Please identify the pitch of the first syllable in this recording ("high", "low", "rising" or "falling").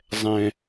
low